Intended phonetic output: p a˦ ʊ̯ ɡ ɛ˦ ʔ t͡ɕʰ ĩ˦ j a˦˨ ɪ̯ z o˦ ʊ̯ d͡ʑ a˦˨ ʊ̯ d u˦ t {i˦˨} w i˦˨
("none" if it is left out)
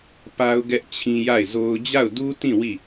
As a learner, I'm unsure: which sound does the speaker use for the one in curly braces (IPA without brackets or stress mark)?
ĩ˦˨